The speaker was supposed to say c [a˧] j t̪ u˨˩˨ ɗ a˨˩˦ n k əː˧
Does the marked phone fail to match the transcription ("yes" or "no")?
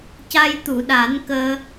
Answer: no